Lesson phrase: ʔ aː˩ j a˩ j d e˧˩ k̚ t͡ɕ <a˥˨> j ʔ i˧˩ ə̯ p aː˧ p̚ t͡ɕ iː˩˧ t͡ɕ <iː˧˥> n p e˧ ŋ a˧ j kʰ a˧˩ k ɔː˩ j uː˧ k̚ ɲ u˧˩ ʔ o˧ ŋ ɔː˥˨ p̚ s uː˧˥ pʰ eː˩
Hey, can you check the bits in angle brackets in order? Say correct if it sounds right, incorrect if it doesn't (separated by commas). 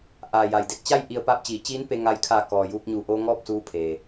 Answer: correct, correct